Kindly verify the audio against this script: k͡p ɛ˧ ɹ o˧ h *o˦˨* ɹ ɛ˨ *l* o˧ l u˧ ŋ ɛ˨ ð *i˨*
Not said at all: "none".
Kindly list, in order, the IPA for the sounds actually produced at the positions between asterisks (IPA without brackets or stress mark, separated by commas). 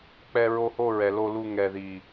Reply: o˦˨, l, i˨